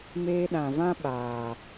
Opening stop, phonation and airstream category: implosive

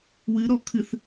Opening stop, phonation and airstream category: aspirated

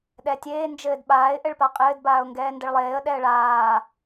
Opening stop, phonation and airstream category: implosive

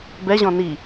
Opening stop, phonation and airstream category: plain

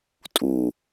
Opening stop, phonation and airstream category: ejective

